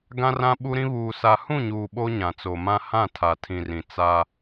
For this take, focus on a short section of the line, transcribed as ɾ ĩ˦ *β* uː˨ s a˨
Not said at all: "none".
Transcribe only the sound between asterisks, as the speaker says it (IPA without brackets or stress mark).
β